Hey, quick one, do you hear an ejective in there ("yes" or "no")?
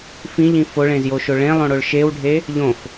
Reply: no